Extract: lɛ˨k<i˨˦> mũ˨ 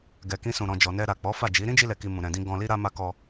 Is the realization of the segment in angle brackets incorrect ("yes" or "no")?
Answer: yes